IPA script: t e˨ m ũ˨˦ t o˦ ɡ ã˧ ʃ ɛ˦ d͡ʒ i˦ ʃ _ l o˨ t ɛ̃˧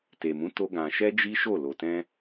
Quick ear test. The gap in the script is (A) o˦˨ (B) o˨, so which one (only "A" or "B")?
A